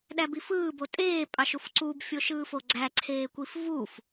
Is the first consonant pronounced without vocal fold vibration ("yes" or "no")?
no